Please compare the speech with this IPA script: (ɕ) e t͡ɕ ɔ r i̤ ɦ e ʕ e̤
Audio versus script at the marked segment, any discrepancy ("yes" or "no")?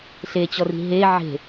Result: yes